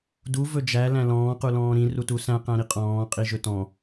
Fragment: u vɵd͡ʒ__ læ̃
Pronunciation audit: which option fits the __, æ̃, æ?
æ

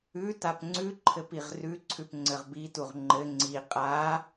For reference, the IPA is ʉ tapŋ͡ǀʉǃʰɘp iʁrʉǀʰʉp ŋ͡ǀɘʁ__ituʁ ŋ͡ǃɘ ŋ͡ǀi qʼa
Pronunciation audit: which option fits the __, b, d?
b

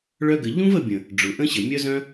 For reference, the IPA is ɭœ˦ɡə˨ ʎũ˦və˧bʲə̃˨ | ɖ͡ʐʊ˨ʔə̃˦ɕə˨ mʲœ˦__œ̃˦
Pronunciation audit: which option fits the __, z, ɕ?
z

